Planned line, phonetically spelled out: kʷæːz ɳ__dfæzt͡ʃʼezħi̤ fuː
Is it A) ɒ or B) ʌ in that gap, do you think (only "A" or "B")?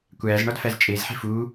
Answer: A